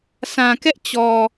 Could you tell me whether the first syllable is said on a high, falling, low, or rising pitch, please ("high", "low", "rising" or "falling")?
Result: low